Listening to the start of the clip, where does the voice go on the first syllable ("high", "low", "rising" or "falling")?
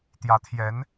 rising